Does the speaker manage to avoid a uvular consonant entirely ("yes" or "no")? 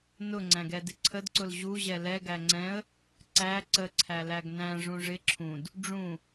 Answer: yes